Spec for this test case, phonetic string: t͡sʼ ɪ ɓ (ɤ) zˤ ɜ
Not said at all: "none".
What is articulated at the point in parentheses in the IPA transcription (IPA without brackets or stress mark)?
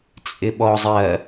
ɔ